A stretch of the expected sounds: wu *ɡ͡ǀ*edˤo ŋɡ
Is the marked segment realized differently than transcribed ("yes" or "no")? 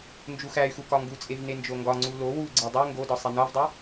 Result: no